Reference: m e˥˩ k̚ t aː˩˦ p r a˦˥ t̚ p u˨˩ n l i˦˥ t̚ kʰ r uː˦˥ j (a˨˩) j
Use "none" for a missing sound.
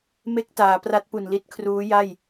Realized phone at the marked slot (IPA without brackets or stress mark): a˥˩